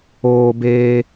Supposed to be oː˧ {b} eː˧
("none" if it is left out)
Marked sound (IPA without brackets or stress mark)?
b